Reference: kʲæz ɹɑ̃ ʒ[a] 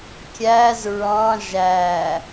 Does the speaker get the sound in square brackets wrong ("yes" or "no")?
yes